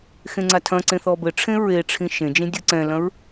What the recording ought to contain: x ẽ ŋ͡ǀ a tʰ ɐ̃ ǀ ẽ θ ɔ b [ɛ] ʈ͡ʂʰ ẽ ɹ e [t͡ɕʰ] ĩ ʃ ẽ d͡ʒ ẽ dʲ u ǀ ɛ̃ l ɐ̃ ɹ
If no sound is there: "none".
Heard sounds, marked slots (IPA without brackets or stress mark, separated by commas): ɘ, ʈ͡ʂʰ